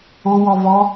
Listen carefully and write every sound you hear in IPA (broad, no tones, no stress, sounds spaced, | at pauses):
o w ɔ v ɔ